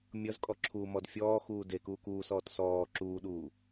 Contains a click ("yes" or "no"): yes